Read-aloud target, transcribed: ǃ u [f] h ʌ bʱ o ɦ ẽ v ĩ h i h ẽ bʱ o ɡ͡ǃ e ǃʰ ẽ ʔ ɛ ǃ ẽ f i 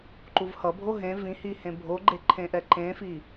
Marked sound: incorrect: v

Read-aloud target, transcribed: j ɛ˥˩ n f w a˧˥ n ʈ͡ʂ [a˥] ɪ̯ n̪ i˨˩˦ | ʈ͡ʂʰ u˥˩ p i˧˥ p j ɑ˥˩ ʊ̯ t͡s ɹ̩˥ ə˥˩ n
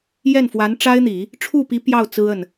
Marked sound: correct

